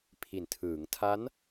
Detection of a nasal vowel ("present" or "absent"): absent